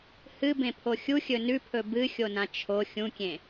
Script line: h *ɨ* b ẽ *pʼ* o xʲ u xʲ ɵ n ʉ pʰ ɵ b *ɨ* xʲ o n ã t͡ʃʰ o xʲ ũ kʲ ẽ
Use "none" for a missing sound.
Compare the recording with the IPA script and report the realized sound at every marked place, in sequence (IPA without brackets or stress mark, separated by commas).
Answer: ɨ, pʰ, ɨ